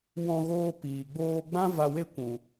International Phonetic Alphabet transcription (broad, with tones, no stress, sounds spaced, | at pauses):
w ɔ̃˧ ɣ oː˧ p iː˨ ɡ͡b oː˧ ɡ͡b ã˦ v a˧ w e˦ kʷ ũ˨